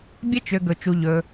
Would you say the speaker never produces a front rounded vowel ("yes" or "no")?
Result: no